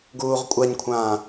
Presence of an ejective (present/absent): present